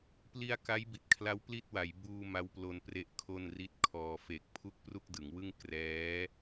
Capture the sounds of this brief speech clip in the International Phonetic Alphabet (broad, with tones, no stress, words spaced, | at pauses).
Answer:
pli˧a̯ka˦˥j bi˨˩t̚kʰla˦˥w pli˥˩t̚wa˩˦jbuː˧ ma˦˥wplo˧n pre˥˩ʔkʰo˥˩nri˥˩t̚kʰɔː˧ fe˨˩k̚ pʰu˥˩k̚ pru˥˩k̚dɯ˩˦ŋwɯ˥˩ŋ krɛː˦˥